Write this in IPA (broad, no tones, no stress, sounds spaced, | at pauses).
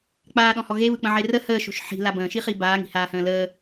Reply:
k͡p aː ɗ ɔ̃ h ɔ ɣ e β ɯ k͡p ə̃ ʕ e r ə h əː ʃ o̤ ʃ ħ i̤ l a b ə̃ː ʃ i χ i b aː ŋ i̤ h aː h ə̃ː l əː